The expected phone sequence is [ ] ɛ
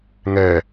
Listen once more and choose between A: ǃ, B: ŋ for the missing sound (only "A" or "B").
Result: B